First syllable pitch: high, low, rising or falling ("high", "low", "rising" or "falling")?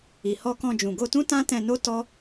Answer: low